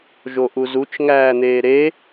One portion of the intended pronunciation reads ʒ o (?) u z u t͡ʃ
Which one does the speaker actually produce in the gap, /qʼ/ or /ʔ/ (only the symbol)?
ʔ